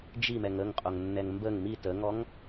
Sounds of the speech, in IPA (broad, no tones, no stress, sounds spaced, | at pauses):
d͡ʒ i m ɛ ŋ ə ŋ qʼ o ŋ nː ɛ ŋ m b ə ŋ m i t ə ŋ ɔ ŋ